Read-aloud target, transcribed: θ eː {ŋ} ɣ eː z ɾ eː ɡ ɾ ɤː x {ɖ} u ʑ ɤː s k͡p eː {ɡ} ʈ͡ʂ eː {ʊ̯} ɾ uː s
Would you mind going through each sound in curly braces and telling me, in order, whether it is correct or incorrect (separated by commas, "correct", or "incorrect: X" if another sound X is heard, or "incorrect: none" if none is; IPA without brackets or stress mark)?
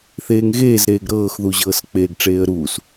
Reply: correct, incorrect: ð, correct, incorrect: ə̯